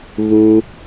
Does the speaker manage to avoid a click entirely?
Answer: yes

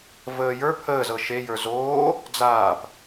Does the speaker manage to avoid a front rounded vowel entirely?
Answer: yes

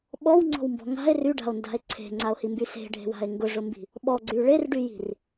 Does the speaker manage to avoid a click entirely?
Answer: no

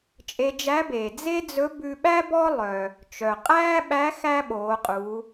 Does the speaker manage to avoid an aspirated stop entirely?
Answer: yes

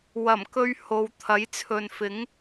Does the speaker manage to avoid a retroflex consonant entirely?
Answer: yes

